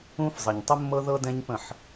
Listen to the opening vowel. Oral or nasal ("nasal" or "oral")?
nasal